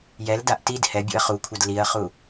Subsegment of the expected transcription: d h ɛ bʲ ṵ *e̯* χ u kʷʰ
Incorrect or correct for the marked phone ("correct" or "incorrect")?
incorrect